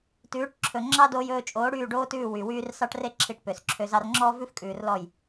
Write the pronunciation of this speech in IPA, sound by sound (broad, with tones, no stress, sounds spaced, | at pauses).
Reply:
t ʉː˨˦ ʈ ǁʰ ɵ˨ ŋ͡ǁ ɑ˦ d oː˧ j ɵː˧ t͡ʃʼ oː˨˦ ɽ yː˦˨ ɖ oː˦ t ʉː˦˨ w y˨ w yː˦ r s ɑ˦ ʈ r e˦ ǁʰ i˧ ʈ p ø˨ s ǁʰ ø˧ z ɑ˧ r ŋ͡ǁ ɔː˦ v ʉ˦ f kʼ ʉː˨ r l ɔ˦˨ j